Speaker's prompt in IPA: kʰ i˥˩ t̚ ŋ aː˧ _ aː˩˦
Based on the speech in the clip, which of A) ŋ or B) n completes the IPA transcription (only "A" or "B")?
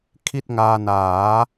B